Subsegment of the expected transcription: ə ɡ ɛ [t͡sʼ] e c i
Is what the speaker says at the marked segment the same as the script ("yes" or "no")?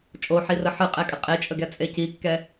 yes